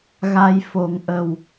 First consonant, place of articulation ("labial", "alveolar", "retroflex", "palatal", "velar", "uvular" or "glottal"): velar